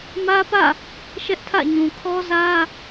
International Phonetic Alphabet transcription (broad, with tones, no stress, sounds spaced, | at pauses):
m ä˦ p ä̰˦˨ | ʃ ɛ˦ ʔ tʰ ä̰˦˨ ɲ ũ˨ kʰ ɔ˦ z ä˦